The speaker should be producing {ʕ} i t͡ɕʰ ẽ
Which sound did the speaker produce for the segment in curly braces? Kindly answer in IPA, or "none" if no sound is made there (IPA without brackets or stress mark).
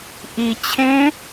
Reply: ʔ